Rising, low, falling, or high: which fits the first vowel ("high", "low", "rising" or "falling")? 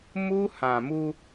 high